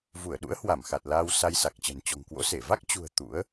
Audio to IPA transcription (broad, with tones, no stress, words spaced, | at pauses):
vu˧˩ə̯ ɗṵ˧˥ə̯hwa˧˩mxa˨˩t̚ laː˧wsa˧jsa˨˩k̚t͡ɕə̤˨˩n t͡ɕɔ̤˨˩ŋkwo̰˧˥se˧˩ va˦˥k̚t͡ɕṳ˨˩ə̯ t̪ṵ˧˥ə̯